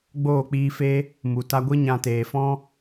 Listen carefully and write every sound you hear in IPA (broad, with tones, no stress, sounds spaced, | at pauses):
ɡ͡b oː˦˨ k͡p iː˧ f e˦ | m u˨ t a˧ ɡʷ ɨ˦ ɲ ã˧ t eː˨ f ɔ̃˦